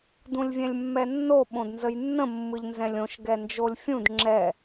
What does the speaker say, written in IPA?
dũlʲvʲɛ̃lʲmːɛnːo ɓõdnzəjnːə̃ mːɯʎnzɛ̃lʲõʃ ɡɛnd͡ʒolʲfʲũd ŋ͡ǁɛ

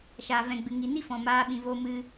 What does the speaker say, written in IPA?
ʃaː˨vɛ̃˨ɡ͡bɨ˨ ŋi˨ni˦ fɔ̃˨maː˧ ɓĩ˨vo˧mɨ˧

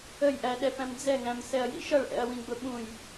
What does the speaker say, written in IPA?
əjʔæɗɛpæ̃m d͡zɛŋæ̃msɛɐ̯jḭ ʃʌɭʔɛ̰ɐ̯wĩɡ͡bʊ ɓũj

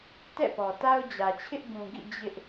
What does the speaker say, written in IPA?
tɛ̰˦˨pɔ˨ta˦ʊ̯ d͡ʑä˨t͡ɕʰɪ˦ʔ ɡũ˨ɡḭ˦˨ d͡ʑɪ˦ʔ

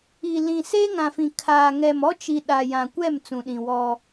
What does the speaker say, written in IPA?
i˨lĩ˨ seː˦ŋã˨fĩ˨ kʰaː˨ ŋɛ˨mɔ˦t͡ʃi˨ ɗa˨jã˨kʷɛ˦˨m t͡sũ˨ɗĩ˨wɔ˦

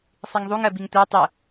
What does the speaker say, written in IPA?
sˤiŋðˤuŋ ɜbiŋtʷa tˤə

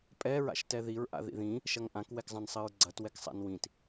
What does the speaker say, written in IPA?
pʼɛ ɹa̰ʃtɛðiɹ ʔa̰ðḭðĩ | ʃɐŋʔãk wɛkzˤãnsˤɘɹɡ͡ǀɐt wɛksˤa̰nwĩt

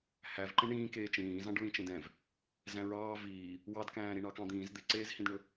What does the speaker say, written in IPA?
hævǃẽ ɳĩː keːt͡ʃĩːzɑ̃ɖ ɹĩt͡ʃẽdɛ̃v | zæ̃ɹɑː viː | wɑdkæ̃ː ɾiɳɑkɑ̃d̪ĩːz d̪eǀeːzhĩdɳɵ

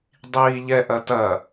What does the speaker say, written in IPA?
dˤiːʎɛʔɐtɐ

